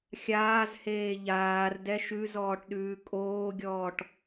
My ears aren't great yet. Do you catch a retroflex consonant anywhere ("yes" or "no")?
yes